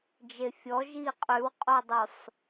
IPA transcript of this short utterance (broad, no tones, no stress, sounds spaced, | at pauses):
d͡ʒ e fʲ ɔ ʒ iː qʼ ʉ w qʼ o dˤ u sˤ